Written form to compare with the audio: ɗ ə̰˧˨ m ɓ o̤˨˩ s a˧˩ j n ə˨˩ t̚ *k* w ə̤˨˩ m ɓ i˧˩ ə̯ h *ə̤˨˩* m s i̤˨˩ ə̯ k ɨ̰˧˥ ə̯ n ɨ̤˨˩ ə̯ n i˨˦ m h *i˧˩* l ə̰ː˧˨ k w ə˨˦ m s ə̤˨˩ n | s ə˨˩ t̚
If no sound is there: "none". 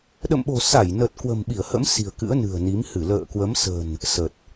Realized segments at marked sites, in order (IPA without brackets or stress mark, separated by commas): k, ə̰˧˥, ɨ˧˩